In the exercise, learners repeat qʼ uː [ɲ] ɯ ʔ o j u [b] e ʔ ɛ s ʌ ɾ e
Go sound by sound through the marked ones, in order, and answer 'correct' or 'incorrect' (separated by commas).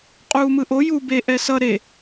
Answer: incorrect, correct